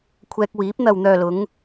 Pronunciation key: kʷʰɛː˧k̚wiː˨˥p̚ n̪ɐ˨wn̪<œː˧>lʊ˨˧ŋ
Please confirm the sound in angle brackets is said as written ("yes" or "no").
no